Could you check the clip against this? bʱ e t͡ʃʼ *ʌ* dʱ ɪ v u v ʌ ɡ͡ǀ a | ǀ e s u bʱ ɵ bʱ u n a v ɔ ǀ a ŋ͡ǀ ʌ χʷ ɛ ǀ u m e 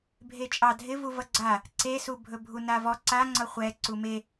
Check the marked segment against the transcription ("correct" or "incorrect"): incorrect